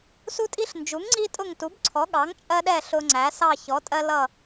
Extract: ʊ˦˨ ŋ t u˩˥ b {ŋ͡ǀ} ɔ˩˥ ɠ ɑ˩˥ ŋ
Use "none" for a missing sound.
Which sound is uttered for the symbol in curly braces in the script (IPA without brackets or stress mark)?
ǀʰ